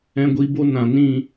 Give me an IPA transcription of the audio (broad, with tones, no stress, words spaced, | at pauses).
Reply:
ɛ̃˦ɡʷiː˦ bo˦ nã˨nĩ˦˨